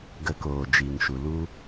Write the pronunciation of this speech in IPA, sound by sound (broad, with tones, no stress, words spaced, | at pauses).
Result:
ɡə˧koː˨d͡ʒiː˨ŋʃu˨ lu˦